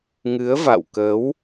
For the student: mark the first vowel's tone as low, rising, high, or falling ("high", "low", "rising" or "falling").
rising